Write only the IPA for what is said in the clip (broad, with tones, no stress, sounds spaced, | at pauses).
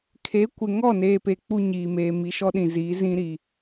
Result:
kʰ e˨˦ kʷ ɪ˨ ŋ ɔ˦˨ n eː˨ p e˨ k͡p u˦ ɲ iː˨ m eː˨ m i˨ ʃ ɔ˦ ɗ ĩ˨ z iː˨˦ z ĩ˦ ɾ i˨